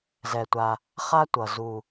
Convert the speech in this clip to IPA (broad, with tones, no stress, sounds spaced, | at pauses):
z ɛ˧ tʷ a˧ | χ a˥ tʷ ʌ˨˩ z u˨˩